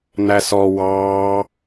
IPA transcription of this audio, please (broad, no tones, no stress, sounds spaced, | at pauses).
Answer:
n̪ æ s ɔ w ɑ